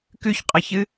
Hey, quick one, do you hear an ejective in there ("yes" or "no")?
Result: yes